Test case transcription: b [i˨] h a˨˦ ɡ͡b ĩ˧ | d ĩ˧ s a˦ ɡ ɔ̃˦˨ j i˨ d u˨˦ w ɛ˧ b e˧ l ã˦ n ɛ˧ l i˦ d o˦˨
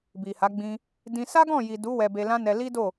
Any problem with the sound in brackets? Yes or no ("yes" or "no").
no